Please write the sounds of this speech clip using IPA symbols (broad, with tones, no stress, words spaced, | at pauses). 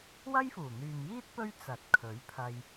wɐ˥jfuː˨˩n̪yː˨mjiː˥t̚ pɵ˥ɥt͡sɐ˨t̚kʰɵ˨˥ɥ pʰɐ˧j